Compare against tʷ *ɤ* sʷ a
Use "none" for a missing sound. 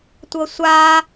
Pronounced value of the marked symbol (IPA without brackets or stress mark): ɤ